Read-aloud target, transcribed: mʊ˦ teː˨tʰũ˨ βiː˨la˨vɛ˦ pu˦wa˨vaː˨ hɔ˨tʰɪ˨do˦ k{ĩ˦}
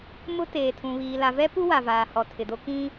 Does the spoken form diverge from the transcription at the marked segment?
no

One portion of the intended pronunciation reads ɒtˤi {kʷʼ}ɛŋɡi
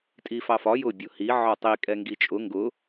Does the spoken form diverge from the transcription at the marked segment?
yes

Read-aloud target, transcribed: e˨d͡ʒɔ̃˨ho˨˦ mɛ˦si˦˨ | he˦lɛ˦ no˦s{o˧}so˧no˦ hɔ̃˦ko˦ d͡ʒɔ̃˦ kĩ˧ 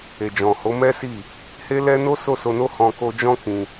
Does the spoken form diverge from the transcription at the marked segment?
yes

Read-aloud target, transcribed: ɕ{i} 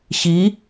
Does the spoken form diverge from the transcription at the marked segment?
no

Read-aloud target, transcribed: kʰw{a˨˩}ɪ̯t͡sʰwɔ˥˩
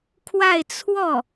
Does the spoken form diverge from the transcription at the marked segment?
yes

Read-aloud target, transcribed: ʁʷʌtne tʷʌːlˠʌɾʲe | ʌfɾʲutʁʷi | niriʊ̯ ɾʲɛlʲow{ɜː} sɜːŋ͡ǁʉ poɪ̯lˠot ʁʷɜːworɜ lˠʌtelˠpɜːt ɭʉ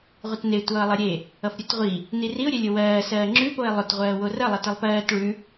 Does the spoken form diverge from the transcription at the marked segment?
no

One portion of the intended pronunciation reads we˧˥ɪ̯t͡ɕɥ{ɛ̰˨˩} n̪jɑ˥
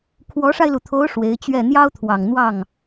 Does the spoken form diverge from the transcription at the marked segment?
yes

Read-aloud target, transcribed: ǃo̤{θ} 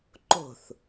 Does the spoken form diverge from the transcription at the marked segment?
no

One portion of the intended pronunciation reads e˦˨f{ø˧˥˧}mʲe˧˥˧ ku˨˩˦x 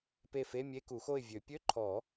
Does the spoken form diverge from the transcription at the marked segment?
yes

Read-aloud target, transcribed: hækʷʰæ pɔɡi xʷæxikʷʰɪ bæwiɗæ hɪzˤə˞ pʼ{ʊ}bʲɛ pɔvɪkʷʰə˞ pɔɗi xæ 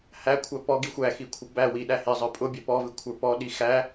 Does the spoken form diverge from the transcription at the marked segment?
no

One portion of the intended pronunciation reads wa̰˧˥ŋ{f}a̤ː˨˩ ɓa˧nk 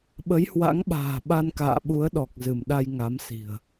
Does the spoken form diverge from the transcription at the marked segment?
yes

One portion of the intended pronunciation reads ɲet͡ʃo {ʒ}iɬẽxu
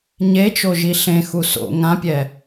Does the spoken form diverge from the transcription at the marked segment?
no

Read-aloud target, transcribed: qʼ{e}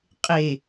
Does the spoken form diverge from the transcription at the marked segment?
no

